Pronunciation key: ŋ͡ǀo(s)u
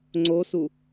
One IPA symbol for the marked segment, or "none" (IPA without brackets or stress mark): s